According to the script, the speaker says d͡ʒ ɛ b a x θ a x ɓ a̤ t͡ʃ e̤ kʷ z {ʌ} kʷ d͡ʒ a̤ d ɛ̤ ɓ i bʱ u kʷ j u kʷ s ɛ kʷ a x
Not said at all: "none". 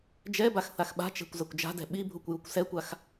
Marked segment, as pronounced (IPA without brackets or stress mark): ʌ